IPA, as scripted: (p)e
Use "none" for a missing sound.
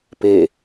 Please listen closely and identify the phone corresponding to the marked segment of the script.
p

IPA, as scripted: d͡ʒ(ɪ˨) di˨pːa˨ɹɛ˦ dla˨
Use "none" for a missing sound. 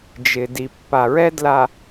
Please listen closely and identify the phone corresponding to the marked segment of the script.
ɪ˨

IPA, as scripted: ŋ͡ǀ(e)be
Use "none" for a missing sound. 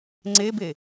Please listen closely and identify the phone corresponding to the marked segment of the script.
e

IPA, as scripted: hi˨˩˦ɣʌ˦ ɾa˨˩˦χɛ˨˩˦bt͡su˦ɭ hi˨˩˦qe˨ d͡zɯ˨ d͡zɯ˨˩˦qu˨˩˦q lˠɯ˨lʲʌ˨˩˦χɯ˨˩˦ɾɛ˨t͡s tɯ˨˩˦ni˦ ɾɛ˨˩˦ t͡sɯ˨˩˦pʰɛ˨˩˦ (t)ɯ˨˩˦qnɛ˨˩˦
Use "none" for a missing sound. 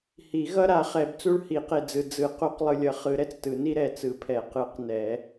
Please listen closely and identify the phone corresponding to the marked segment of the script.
q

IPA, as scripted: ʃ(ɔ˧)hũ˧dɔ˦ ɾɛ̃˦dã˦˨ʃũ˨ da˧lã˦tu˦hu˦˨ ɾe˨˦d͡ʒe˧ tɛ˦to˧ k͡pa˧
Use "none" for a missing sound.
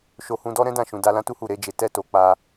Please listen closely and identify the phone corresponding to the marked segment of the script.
o˧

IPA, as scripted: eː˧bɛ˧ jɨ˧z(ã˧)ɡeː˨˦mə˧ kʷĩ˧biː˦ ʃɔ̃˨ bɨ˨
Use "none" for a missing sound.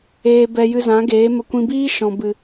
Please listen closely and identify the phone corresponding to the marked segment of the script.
ã˨˦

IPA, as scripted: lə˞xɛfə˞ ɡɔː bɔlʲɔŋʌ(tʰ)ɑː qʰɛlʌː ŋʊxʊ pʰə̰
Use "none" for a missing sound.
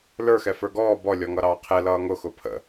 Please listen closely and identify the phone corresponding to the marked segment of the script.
ɾ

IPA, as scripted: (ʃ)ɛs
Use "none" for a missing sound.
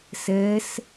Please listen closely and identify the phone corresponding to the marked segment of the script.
s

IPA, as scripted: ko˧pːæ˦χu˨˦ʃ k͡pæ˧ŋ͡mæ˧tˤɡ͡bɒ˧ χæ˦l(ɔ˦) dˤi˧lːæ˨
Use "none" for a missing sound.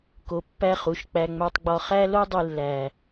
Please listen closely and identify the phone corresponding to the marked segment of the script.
o˦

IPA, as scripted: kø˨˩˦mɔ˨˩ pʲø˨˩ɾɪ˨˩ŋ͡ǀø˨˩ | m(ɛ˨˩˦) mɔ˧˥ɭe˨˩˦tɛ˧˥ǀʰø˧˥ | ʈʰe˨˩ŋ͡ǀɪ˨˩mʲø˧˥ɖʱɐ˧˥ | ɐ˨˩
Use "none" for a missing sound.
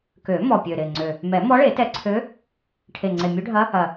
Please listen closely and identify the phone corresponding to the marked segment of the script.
ɛ˨˩˦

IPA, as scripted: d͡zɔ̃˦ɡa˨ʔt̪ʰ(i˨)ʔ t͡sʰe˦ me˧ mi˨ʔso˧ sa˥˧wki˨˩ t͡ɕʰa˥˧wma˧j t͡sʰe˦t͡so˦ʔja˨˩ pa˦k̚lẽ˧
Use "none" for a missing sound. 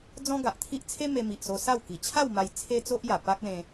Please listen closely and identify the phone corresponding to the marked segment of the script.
i˦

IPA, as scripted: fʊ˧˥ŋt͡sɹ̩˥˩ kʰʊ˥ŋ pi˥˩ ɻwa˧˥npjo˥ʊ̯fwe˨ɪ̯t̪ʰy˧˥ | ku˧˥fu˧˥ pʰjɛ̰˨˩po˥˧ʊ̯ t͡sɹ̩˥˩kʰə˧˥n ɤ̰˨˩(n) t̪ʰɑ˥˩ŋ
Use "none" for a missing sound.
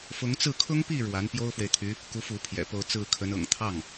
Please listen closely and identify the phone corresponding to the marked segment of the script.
ŋ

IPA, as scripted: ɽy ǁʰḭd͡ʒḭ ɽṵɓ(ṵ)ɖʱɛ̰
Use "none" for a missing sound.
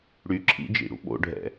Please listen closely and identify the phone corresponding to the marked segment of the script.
o̰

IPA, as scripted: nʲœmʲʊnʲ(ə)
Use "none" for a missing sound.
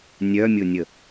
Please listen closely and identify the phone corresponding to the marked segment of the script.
ə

